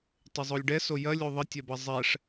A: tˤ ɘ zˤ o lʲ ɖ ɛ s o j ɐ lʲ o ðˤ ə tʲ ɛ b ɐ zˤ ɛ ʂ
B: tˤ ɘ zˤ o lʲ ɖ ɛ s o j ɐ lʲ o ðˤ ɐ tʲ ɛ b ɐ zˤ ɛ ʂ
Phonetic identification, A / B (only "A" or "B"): A